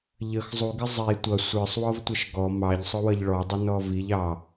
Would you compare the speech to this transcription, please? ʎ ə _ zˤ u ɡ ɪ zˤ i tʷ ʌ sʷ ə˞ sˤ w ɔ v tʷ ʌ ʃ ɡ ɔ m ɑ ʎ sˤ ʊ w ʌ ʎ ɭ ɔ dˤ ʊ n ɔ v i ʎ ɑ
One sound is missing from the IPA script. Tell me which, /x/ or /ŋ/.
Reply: x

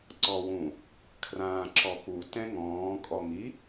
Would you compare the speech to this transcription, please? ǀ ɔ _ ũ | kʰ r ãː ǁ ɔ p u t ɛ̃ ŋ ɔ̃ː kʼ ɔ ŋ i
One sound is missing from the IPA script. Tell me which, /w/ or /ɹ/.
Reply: w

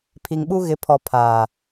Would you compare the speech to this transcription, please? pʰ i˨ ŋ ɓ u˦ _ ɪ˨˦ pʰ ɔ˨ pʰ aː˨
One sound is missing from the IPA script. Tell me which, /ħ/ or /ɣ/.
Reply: ɣ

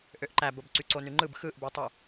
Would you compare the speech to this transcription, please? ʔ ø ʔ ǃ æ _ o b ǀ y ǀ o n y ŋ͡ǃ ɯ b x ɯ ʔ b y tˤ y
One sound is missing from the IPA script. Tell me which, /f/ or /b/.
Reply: b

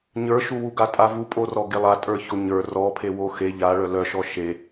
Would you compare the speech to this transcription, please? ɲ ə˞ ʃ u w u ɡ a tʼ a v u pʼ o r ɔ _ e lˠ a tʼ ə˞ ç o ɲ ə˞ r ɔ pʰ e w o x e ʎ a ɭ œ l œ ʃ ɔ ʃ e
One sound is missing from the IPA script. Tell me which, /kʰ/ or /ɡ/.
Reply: ɡ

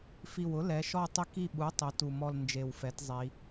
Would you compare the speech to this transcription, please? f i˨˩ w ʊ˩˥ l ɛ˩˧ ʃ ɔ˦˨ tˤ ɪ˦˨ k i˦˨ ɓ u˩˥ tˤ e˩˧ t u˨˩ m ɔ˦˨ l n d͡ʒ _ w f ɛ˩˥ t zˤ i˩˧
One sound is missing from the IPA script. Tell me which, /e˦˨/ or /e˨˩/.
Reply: e˨˩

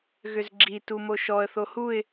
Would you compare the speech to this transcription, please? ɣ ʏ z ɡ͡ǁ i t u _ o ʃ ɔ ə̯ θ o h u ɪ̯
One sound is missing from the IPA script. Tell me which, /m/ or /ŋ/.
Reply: m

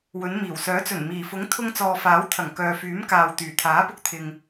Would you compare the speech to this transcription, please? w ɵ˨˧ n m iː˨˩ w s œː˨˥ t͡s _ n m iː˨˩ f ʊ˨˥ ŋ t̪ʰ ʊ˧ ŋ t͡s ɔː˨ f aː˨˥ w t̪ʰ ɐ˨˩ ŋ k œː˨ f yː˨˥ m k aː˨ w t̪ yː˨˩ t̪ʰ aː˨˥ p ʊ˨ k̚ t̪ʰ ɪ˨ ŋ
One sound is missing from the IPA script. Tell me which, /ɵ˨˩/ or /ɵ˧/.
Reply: ɵ˨˩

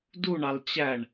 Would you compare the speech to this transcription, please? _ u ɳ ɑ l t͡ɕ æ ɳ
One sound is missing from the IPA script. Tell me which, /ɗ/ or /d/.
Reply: d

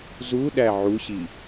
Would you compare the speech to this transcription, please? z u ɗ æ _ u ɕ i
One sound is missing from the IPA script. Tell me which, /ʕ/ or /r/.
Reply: ʕ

